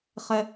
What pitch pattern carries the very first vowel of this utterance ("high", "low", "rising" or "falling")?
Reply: low